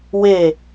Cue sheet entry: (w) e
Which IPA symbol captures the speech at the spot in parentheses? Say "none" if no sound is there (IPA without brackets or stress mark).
w